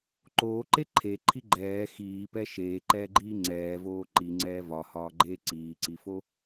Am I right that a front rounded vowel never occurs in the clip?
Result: yes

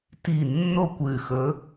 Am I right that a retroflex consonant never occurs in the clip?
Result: yes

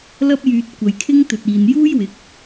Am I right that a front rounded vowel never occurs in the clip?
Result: no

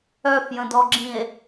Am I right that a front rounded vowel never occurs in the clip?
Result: no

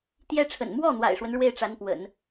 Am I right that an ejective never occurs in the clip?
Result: yes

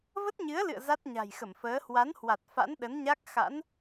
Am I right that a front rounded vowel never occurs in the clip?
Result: yes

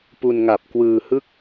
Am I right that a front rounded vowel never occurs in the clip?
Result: yes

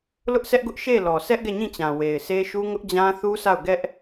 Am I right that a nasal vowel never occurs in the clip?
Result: no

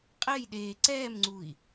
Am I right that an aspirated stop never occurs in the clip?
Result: yes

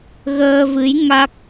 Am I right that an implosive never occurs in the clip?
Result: yes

